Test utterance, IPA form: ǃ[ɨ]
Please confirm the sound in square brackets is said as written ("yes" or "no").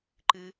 yes